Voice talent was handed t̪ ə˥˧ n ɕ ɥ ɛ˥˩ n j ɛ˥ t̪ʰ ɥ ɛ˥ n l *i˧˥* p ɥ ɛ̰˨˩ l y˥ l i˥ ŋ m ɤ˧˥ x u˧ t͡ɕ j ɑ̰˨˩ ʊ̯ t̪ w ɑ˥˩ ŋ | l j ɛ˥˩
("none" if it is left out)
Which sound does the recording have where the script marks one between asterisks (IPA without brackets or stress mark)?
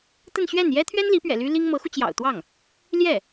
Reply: i˧˥